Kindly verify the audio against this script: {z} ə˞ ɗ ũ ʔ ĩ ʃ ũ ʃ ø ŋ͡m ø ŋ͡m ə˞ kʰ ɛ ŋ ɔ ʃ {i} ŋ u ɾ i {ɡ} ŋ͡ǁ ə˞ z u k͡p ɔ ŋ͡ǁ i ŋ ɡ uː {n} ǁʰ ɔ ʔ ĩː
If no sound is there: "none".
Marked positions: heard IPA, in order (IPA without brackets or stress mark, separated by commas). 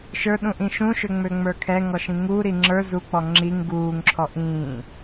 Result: ʃ, ĩ, none, ŋ